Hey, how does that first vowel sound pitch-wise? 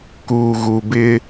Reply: low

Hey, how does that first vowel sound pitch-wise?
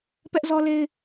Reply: high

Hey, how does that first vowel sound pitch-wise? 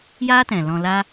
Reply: high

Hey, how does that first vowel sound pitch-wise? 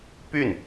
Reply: falling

